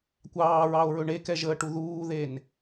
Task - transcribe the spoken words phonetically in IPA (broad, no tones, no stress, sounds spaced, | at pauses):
kʷ ɑː ɹ ɑ o̯ ɹ ɵ ɳ e k ɛ ʒ əː ʈ u ð uː ð e n